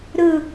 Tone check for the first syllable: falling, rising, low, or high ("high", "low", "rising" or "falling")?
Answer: falling